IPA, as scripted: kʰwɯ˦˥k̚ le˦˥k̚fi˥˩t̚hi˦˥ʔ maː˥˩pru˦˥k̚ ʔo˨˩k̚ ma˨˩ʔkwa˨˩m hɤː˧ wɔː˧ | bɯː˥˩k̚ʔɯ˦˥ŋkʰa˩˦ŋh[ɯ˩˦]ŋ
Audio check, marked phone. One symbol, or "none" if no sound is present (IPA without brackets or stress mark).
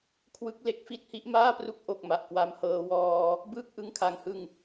ɯ˧